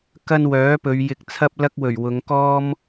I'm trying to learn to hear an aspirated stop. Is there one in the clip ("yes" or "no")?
yes